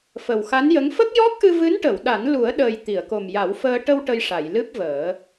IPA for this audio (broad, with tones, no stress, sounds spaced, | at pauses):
f ə˨˩ w x a˧˥ n j ə˧˥ ŋ f ə˦˥ k̚ j ɔ˦˥ k̚ ʔ ɨ˧ v ɨ˧˥ n ʈ ə˨˩˨ w ɗ a˨˩˦ n l u˨˩˦ ə̯ ɗ əː˨˩ j t̪ i˨˩˨ ə̯ k o˨˩ m j a˨˩˦ w f əː˧ ʈ ə˧ w ʈ ə˧ j ʂ a˨˩˨ j l ɨ˦˥ p̚ v əː˨˩˦